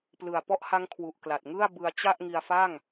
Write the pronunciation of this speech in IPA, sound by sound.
plɯ˨˩a̯pɔ˦˥ʔ ha˦˥ŋkʰwu˨˩ʔ kla˨˩t̚ŋɯ˥˩a̯ bɯ˧a̯ t͡ɕa˥˩ʔ ŋi˧a̯fa˥˩ŋ

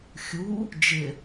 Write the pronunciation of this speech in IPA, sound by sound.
xʲu | d͡ʒɪ

